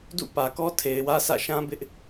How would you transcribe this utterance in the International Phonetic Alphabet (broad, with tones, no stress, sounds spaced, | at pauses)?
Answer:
d ṵ˦˨ p ä˨ k ɔ˦ tʰ e˨ ɪ̯ w ä˦ sʰ ä̰˦˨ ʃ ã˦ b ɪ˦ ʔ